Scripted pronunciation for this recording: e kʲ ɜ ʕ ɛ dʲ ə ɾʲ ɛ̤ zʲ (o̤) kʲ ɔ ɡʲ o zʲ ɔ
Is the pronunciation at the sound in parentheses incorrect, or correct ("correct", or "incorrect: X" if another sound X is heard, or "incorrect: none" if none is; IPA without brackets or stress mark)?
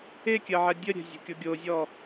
correct